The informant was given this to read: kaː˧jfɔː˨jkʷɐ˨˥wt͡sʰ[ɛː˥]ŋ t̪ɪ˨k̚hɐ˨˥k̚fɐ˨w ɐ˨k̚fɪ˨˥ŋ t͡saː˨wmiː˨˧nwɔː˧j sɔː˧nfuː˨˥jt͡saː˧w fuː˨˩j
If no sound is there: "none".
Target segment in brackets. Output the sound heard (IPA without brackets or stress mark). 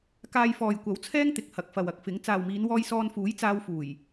ɛː˥